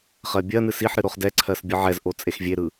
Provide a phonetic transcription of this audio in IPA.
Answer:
χ ɜ bʲ ɜ n ɨ s i ħ ɾ ɨ ɾ o χ d ɛ ǀʰ ɜ s bʲ ɯ ʕ ɛ z ʔ o t͡sʼ e x vʲ e ɾ ɯ

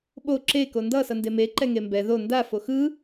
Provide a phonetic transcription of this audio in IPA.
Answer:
ɓ o ǁ e k o n d ʌ s ʌ n d e m e ǃ ɛ ŋ e m b ɛ ð o n d a f o x ɯ

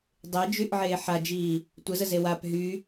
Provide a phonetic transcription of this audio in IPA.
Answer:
dˤ e d͡ʒ y ʔ ʕ eː ħ a d͡ʒ iː | tʷ ə z ə z e w a p ɦ y

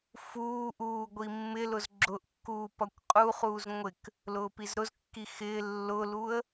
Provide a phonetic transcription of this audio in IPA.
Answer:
f uː ʔ uː ɡʷ i mː ɪ l ʊ z ɡ͡ǁ ʊ ʔ kː uː p ʌ kʷ qʼ u χ uː z ŋʷ ɪ k | l ʊː p i z ɾ ʊ z kː i x ɪː lː ʊ l u ə̯

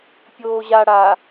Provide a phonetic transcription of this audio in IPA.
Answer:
pʲ oː ʑ a ɽ a

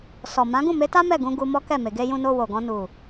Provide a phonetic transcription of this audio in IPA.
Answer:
s ɔ˨ m ã˨˦ ɡ ũ˦˨ m e˨˦ t a˦ m ɛ˦˨ ɡ ũ˧ ɡ u˧ m ɔ˦ k ɛ˦˨ m e˨ ɡ e˧ j ũ˧ n o˧ w o˨ ɡ ɔ̃˧ n u˨

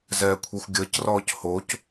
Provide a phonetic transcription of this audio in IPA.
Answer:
z ɛː kʷʰ i xʷ ɡʲ əː c r ɔː c h o c

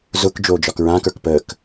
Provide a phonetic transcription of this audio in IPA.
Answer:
z ʊ k d͡ʒ oː d͡ʒ ɒ k ɹ ãː k ə˞ k p əː k

